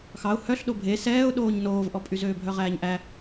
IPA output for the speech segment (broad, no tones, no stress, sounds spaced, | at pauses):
x ɑ ʊ̯ h œ ɬ ɗ o bʱ e s ɛː ʊ̯ ɗ oː ɲ n oː v ʔ ɔ pʼ y z øː bʱ œ ʁ æː ɲ ʔ æ